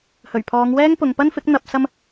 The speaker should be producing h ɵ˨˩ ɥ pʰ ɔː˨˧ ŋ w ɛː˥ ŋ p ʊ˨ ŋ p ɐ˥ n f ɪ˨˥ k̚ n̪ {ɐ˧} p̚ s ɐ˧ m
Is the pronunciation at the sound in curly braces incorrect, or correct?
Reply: correct